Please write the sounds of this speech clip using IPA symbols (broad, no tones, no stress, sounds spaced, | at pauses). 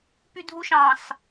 p y dʱ u ʃ ɑ̃ s